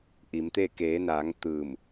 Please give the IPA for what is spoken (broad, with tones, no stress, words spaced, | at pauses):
ʔi˩˧mt̪e˥˨ keː˩˧naː˩˧ŋ t̪ɯː˧˩m